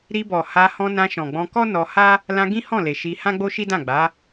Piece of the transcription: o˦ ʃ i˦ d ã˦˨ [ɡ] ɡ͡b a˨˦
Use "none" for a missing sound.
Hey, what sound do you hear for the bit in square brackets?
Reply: none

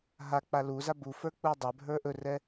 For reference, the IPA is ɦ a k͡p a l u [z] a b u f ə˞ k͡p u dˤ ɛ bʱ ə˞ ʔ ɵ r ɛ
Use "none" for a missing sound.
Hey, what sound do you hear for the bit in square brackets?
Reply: z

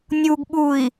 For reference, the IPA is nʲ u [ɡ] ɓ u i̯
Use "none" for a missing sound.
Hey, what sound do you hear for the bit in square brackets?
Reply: ɡ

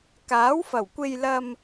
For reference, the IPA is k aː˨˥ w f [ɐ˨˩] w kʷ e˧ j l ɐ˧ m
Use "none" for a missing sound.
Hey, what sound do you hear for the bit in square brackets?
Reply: ɐ˨˩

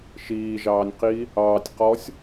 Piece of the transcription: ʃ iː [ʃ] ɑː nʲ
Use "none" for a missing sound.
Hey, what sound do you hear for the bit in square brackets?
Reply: ʒ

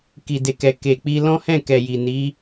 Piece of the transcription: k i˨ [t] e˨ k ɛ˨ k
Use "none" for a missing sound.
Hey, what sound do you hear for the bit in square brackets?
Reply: d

